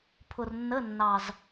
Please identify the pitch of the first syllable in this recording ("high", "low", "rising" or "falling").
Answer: low